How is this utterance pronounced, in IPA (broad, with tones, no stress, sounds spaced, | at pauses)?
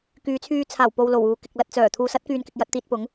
k yː˨˧ t͡sʰ yː˧ t͡sʰ aː˨˩ w p o˨ w l o˨˩ w uː˨ k ɪ˨ k̚ l ɐ˧ t̚ t͡s œː˨˩ t̪ʰ uː˨ s ɐ˧ t̚ k yː˨ n k ɪ˨ k̚ j ɐ˧ t̚ t̪ iː˧ t̚ p ʊ˨˥ ŋ